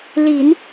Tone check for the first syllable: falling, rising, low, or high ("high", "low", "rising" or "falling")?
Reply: low